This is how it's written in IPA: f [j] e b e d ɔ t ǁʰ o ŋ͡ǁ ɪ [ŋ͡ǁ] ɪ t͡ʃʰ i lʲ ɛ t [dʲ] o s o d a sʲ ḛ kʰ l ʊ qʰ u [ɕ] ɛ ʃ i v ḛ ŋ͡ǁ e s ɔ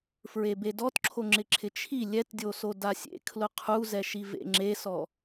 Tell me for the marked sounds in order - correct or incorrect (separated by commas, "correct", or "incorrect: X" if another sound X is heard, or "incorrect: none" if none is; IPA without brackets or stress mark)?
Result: incorrect: ɹ, incorrect: ǁʰ, correct, incorrect: z